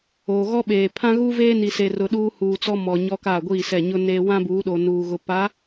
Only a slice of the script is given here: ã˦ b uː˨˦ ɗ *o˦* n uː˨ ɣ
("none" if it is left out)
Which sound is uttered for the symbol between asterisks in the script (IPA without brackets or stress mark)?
o˨